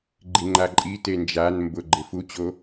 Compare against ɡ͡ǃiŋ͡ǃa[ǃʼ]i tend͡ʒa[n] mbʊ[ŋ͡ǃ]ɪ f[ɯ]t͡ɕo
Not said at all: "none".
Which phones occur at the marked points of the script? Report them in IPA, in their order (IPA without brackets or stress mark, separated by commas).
ǃʼ, n, ɡ͡ǃ, u